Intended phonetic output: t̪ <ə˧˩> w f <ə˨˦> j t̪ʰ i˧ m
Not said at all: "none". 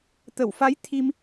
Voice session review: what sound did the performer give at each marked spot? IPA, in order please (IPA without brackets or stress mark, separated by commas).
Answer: ə˧˩, a˨˦